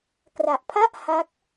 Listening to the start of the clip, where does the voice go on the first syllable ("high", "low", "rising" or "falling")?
low